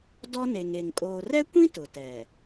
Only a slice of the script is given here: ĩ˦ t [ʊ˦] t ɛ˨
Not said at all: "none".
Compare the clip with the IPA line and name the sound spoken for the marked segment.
ʊ˨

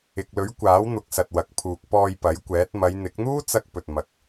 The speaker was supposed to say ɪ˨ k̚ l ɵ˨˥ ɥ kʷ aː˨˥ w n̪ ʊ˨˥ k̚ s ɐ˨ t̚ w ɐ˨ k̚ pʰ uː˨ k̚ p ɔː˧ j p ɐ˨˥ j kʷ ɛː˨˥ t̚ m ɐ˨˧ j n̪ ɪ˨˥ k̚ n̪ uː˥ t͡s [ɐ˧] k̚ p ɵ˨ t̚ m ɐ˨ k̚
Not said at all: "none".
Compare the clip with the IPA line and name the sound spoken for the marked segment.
ɐ˧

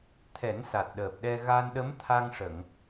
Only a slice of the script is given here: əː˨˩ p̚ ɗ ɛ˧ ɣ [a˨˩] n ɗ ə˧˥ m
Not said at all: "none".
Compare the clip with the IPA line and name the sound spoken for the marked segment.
a˧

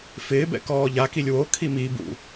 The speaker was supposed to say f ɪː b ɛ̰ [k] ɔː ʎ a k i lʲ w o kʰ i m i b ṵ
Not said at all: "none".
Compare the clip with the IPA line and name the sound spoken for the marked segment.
k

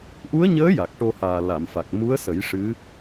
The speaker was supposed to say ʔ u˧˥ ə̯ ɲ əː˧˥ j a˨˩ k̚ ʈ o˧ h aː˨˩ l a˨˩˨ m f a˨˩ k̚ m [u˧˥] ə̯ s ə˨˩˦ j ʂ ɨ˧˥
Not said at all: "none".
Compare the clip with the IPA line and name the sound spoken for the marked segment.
u˧˥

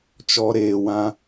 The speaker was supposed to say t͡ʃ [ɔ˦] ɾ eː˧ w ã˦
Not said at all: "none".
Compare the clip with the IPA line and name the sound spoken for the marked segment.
ɔ˦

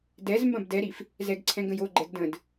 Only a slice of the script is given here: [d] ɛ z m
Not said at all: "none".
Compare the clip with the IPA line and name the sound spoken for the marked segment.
d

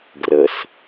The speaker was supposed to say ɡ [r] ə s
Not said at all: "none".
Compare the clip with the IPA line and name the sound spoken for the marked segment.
r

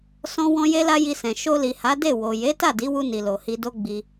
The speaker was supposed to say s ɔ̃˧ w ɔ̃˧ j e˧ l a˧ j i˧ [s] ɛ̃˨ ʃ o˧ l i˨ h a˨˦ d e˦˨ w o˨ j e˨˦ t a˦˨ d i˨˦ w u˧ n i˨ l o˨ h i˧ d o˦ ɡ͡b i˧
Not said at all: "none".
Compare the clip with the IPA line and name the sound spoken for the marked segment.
s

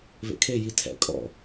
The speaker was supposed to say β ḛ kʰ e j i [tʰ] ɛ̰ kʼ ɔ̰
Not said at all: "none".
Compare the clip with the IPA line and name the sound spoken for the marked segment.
tʰ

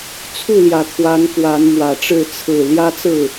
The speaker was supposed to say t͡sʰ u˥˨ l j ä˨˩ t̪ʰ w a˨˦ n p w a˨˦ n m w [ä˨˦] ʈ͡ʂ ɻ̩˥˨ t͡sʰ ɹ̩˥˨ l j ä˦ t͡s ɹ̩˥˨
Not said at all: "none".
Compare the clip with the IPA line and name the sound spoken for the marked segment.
ä˨˩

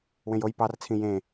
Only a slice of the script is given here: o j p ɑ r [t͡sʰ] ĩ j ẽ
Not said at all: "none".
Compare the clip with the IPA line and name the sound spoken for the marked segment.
t͡sʰ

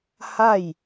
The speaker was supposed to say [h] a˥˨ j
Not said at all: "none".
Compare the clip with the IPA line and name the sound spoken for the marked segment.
h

